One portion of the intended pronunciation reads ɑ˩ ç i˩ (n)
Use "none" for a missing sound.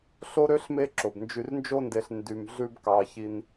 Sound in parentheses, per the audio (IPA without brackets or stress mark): n